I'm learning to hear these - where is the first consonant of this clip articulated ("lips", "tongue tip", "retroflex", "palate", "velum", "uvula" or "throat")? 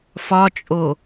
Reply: lips